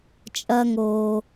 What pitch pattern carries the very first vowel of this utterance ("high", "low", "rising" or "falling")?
high